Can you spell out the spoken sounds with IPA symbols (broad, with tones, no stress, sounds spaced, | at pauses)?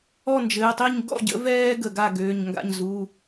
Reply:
ɔ˥˨ n d͡ʒ ɘː˩˧˩ tˤ i˥˨ ɲ ɡ ɔ̰˥˨ ɟ ə̰˩˥ v ɛː˦ ɡ ə˧˩ ɡ a˥˨ ɡ øː˩˧˩ ɲ ŋ ɡ a̰˥˨ ɲ z u˩˧˩